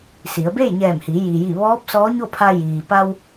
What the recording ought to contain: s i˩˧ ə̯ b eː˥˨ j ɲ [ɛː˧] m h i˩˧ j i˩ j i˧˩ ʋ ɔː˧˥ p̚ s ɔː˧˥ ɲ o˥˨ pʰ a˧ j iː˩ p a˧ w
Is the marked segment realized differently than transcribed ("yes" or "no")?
yes